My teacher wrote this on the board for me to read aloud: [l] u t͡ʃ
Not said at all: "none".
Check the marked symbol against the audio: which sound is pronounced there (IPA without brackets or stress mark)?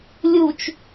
lʲ